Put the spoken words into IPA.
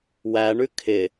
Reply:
wæ ɳʉkʰɪ

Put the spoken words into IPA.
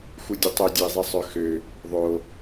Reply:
xudʲətˤø dʲoi̯zˤisˤœxø | ðˤo

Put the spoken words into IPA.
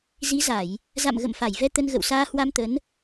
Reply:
zi˨˦za˧˩˨j | za̰˧˨m ɣə̰˧˨mfa˧˩jvɛ˧ t̪ə˧nɣə̰˧˨wsaː˧ hwa˧mt̪ə˨˦n

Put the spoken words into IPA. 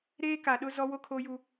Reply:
ɾeː˦ka˨ɗʊ˦ zɔ˦wo˦kʰo˦ju˦

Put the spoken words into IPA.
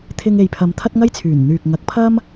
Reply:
t̪ʰɪ˧ŋ e˨jpʰɐ˨˧m t̪ʰɐ˥t̚ŋɐ˥jt͡sʰyː˨˩n n̪yː˨k̚ ŋɐ˨˥k̚pʰɐ˥m

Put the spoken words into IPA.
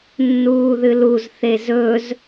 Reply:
nːuːðɨluz θezɵz

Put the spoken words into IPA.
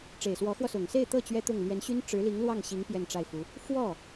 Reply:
ʈ͡ʂe˨˩ɪ̯swɔ˧˥xwɔ˧ sʊ˨˩ŋse˥˧ɪ̯t̪ɤ˥˩ t͡ɕɥɛ˥t̪ʊ˥˩ŋ lɥɛ˧˥nɕy˥n ʈ͡ʂɻ̩˧˥li˧˥ŋ lwɑ˥˩ŋɕi˧˥ŋ pjɛ˥˧nʈ͡ʂa˥˩ɪ̯fu˧˥ | fwɔ˥˩

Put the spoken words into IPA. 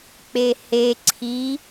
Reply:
k͡pehe ǀʰi

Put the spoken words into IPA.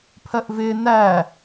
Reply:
pʰɜʔvɪː næ

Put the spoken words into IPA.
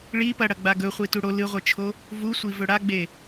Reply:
ɭi pɐ ɽɐɡ͡baɡɵ χʷituɽo lɨʁʷɨt͡ʃʰo | vusʷi vɵɽaɡ͡be

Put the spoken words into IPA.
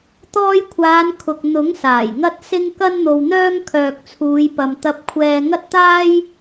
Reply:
t̪ɔː˧jkʷʰaː˨˧n kʰʊ˨k̚ n̪ʊ˨˥ŋ saː˨˩jŋɐ˧t̚ sɪ˧ŋ kɐ˧nn̪o˨wn̪œː˧ŋ kʰœː˨k̚t͡sʰuː˨˧jpɐ˨m t̪ɐ˧p̚kʷʰɛː˧ŋɐ˥t̚t̪aː˥j

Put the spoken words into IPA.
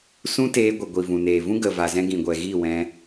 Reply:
sũ˦teː˧ɡʷə˨ ɡʷi˨ vũ˨neː˨vũ˦ ɡə˨ va˨zɛ̃˧ɡĩ˨ɡʷɛ˨ ɣi˦˨wɛ̃˧

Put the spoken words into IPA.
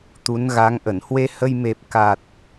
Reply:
t̪u˨˦n ɣa˨˦ŋʔə˧˩n hwe˧hə˧j me˨˩p̚ ka˨˩t̚

